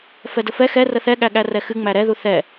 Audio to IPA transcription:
f ɛ d ə f ɛ x ɛ r ə θ ɛ ɠ æ ɠ æ r ɛ x ɨ ŋ͡m æ ɾ ɛ ð u θ ɛ

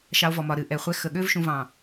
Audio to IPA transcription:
ʃ ɑ˧ o̯ v ɔ˨ m ɒ˨ ɾ ɨ˨ ʔ ɛ˨ χʷ ɛ˧ x ə˨ ɠ ø˦ v ʃ ũ˧ v ɑ̃˨

